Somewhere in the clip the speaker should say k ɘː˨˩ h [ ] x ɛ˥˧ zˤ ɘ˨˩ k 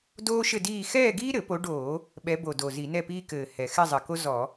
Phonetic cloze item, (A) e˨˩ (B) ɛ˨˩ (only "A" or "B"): B